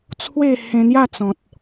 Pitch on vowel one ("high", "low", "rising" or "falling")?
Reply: falling